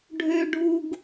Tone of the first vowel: high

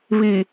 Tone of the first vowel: low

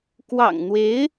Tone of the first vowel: low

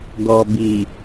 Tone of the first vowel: low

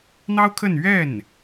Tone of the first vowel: high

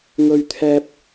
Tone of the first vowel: high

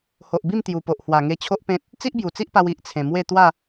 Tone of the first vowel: low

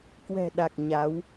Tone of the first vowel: low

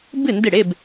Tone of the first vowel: falling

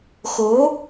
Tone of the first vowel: rising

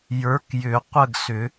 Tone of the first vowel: rising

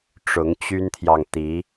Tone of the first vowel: rising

